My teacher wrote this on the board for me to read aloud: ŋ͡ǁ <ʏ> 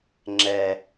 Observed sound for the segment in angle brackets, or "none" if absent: ɛ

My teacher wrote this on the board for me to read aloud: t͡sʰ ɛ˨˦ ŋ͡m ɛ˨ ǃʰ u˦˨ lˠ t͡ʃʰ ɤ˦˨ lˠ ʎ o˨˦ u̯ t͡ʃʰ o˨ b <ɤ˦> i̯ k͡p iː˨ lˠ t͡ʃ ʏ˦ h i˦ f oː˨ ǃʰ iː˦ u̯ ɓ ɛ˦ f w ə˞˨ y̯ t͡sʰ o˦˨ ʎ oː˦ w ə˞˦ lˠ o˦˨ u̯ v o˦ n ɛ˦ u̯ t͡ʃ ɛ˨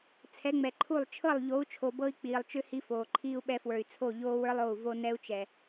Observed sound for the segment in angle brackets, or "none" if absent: ɤ˦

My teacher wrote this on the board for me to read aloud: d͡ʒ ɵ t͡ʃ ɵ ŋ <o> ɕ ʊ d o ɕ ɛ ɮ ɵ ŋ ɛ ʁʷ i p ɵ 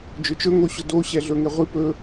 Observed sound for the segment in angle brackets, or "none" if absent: o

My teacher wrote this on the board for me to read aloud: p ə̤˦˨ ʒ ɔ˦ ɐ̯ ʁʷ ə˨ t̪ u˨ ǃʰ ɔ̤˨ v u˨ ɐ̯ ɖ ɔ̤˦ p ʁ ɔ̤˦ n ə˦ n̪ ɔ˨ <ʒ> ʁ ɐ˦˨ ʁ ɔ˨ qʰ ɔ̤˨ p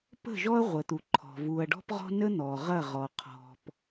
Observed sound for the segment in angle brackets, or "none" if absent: none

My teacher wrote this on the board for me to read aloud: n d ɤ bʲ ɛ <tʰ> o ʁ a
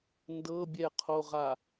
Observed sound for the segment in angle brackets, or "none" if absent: qʰ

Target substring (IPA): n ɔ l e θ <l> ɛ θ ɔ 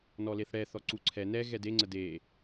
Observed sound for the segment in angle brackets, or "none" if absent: ɽ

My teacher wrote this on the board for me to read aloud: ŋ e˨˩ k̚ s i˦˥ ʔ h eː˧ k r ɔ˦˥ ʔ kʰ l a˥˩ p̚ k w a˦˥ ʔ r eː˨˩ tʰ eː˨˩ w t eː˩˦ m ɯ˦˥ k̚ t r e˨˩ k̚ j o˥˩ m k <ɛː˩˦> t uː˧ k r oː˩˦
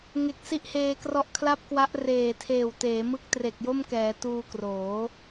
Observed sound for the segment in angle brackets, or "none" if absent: ɛː˩˦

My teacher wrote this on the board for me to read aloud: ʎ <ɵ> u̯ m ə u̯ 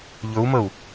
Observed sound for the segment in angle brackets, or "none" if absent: ɵ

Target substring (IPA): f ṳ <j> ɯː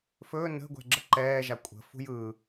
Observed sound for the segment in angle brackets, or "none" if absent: j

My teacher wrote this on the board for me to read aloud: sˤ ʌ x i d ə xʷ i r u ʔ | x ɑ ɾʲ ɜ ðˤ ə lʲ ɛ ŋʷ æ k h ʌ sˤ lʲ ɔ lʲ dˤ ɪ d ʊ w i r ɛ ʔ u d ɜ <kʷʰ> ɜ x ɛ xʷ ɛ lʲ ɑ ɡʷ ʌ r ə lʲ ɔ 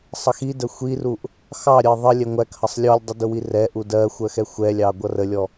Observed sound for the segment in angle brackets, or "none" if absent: xʷ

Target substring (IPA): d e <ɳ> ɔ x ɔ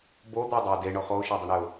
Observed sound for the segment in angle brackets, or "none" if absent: ɳ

